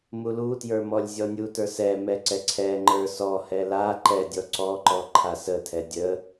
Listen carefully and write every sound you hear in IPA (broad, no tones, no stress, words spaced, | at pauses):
mulutjə˞ mɔlʲzʲɔnʲutə˞ sɛmɛ ǀɛǀʰɛŋ͡ǃə˞ sɔhɛ la ǃɛdʲɔ ǀɔǃɔ ǃʰasətʰɛ dʲə